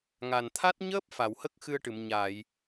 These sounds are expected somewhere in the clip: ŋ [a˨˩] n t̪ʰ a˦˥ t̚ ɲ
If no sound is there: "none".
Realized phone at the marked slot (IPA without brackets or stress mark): a˨˩